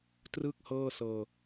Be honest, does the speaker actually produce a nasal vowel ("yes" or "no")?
no